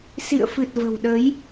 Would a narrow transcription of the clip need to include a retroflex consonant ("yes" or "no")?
no